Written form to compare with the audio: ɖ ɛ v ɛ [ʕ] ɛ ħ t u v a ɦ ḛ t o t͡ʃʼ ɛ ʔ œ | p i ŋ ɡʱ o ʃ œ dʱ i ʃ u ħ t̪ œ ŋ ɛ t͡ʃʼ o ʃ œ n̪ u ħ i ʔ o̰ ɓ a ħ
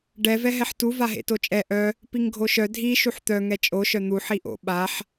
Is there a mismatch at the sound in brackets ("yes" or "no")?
yes